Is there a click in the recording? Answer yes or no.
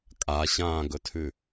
no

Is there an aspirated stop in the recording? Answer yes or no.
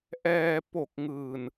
no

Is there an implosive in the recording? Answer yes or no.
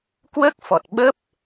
yes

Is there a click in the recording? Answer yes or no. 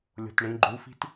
yes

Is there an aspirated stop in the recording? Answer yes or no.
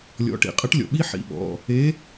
no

